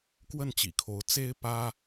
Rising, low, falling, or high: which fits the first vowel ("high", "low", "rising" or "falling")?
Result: falling